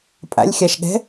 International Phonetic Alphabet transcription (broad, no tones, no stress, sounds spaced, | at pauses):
pʼ a̰ lʲ xʲ a ʃ ɠ ɛ̤